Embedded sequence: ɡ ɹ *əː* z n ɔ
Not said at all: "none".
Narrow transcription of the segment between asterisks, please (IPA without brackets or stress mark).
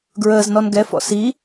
əː